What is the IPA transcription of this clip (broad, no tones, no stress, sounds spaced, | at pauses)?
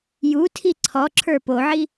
j u tʰ i ǀʰ ɔ ǁʰ ə˞ p o ʕ i